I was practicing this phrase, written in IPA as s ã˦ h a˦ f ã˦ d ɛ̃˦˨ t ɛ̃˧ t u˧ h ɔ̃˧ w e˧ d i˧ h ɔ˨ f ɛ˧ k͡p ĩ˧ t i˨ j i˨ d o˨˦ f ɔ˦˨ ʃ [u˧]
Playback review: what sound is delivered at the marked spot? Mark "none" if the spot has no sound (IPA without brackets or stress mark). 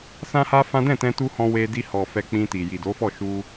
u˧